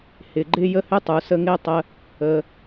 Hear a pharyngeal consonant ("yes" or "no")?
no